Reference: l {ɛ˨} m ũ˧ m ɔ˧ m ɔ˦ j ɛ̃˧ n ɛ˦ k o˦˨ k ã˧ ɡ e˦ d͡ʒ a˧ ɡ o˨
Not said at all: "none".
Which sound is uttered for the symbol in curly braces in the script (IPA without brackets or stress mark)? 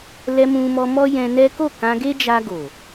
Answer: ɛ˧